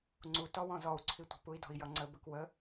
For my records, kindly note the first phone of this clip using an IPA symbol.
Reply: ŋ͡ǀ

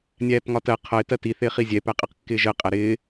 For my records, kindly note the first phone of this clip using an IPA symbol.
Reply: nʲ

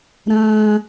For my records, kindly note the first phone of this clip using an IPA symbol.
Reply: ɾ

